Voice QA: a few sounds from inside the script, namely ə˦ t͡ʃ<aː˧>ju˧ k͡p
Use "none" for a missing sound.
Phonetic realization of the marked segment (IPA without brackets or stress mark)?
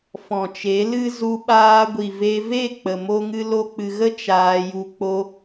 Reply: aː˧